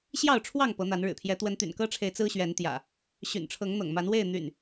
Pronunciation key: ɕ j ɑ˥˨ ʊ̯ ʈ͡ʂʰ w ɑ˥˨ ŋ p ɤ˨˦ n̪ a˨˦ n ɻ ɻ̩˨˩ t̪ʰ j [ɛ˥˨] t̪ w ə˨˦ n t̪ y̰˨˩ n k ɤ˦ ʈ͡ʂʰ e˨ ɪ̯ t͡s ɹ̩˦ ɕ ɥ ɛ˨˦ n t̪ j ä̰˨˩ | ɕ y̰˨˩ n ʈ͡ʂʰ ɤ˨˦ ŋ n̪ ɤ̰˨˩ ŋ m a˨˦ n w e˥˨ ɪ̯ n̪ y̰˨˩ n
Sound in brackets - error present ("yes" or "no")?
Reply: yes